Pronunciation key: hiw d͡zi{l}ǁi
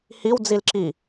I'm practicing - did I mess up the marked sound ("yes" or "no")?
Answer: no